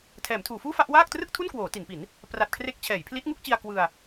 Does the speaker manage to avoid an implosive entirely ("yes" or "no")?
yes